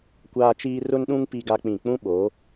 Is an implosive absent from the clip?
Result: no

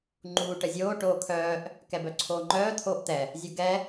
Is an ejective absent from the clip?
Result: yes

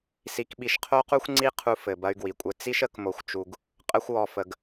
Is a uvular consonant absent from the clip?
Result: no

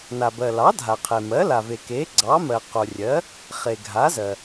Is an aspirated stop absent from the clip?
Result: no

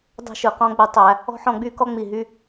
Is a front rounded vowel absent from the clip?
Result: no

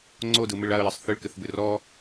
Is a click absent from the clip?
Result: no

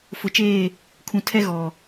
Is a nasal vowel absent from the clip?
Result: no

